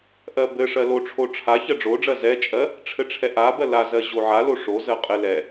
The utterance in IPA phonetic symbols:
ʔɜbɘʂɜ loʈ͡ʂʰo ʈ͡ʂʰa çɜɖ͡ʐoɖ͡ʐɜ zɛt͡ʃʼɜ | ʈ͡ʂʰɘʈ͡ʂʰɛʔabɜ lazɜ ʑoʕalo ʂozɜ qʼɘ lɛ

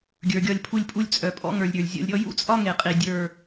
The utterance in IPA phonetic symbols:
ɡʲə˞˨ɡʲɒ˧lʲpʰu˧lʲpʼu˧lʲ t͡sʼœ˨pʼɔ̰˦ŋə˞˨lʲ ɾʲə˞˨lʲzʲɔ̰˧lʲɾʲɔ˦ jṵ˦t͡sʼɒ˦ ŋe˨qʼi˨dʲə˞˦˨

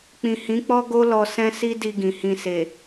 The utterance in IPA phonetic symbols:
k͡pĩ˨hĩ˨˦k͡pɔ˦ɡo˦ lɔ˧sɛ̃˦si˦ di˧ɡĩ˨hĩ˧ se˨

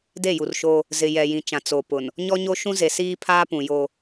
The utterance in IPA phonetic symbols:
de˦˨ju˨rʃo˦ | zɪ˨ jɛ˨jĩ˨t͡ʃã˨ t͡so˨pʊ˨n | ɲɔ˦ɲo˦ʃũ˦ze˨ siː˦pʰaː˦pũ˨ jo˦

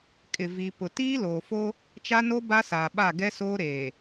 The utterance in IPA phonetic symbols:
kʼɪ˨vi˨ pʊ˨ tiː˦loː˨fo˦ | t͡ʃa˦no˦ ba˦saː˨ ɓa˦˨ɡɛ˦soː˦ ɾeː˨

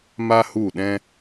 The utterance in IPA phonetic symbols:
ma˦hu˦˨ɗɛ̃˦

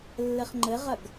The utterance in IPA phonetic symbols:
lːɘχŋ͡ǃɘʁɐɡ

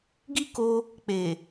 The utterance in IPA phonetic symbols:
ɡi˦ko˧ | k͡pe˨

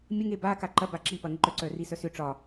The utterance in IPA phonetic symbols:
mʲəŋe ba kaǃɐba ǁipɐ ŋəǃœǀœ risœsʏ ʈ͡ʂɒ

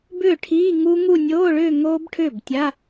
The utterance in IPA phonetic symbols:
bʏː˥˩ʈʰiː˧˥˧ŋu˦˥ŋu˥˧ nʲoː˧˥˧ɭʏː˥˧ ŋoː˦˥bʈʰʏː˥˩btʲa˧˥˧

